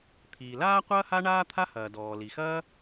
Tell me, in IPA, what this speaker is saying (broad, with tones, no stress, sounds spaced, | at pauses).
t̪ʰ iː˩ l aː˥ qʷ ɐː˥ h a˥ ɳ aː˥ t̪ʰ a˥ h ɐː˩ d ɔː˩ l i˩ x ɐː˥